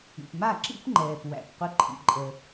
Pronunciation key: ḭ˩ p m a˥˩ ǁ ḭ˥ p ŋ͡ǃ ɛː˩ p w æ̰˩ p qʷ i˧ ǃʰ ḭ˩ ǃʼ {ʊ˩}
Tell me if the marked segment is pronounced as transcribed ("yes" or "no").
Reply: no